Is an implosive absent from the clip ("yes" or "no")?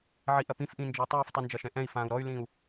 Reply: yes